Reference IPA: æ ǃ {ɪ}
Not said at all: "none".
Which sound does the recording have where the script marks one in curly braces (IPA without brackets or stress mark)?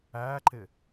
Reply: ɪ